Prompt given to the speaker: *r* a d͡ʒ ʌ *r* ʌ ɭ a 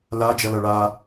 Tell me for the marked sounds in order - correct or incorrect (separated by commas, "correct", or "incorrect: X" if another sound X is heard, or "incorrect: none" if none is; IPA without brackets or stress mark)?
incorrect: l, incorrect: l